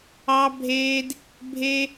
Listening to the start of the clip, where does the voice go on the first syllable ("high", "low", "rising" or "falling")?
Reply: high